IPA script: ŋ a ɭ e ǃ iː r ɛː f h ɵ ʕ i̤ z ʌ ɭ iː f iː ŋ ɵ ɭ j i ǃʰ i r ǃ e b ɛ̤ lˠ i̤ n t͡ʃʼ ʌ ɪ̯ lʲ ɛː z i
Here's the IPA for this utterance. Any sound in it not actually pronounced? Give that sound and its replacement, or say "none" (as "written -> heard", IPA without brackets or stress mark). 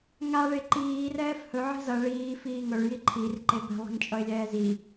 none